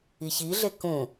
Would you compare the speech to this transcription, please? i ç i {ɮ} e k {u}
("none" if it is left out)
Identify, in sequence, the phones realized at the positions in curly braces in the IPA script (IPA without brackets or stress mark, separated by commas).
ɮ, ũ